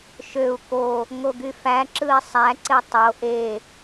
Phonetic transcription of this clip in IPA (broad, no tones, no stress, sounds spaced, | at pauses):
ʃ ø u̯ k o | ŋ o ɡ y f æ ǁ ɯ i̯ sˤ æ ǀ e tˤ o ʔ e